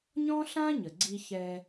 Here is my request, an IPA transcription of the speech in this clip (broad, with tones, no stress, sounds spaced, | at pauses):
ɲ ɔ̃˥ ɬ ã˥ ɲ ə˩ ɡ͡ǀ i˧ ç ɛ˧